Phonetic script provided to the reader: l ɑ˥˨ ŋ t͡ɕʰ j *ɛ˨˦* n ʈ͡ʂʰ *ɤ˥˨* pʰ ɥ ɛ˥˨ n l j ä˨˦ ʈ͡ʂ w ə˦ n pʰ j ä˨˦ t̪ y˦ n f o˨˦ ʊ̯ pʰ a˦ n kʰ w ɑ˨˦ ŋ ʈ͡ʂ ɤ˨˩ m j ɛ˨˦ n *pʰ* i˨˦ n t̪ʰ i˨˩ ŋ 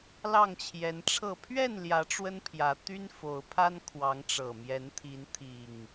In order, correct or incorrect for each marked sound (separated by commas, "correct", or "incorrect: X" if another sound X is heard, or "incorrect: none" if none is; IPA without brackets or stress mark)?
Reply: correct, correct, incorrect: t̪ʰ